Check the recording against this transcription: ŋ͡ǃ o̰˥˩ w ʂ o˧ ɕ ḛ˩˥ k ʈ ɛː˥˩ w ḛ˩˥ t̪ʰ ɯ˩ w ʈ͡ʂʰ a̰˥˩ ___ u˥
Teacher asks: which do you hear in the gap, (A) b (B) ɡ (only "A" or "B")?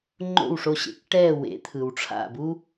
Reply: A